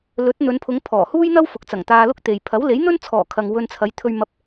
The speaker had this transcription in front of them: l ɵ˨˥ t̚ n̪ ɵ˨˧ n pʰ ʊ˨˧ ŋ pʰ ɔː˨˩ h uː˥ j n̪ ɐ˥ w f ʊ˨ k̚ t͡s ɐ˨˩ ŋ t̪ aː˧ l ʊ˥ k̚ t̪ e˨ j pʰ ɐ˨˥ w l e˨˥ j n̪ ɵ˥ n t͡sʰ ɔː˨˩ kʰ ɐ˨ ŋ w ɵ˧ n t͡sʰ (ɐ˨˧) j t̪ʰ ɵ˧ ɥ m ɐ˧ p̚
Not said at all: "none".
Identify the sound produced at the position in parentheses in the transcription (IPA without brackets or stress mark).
ɐ˨˧